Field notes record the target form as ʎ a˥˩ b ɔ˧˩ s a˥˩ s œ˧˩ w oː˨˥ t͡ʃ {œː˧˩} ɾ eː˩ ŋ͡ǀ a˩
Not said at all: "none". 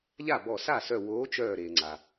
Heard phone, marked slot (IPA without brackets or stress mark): œː˧˩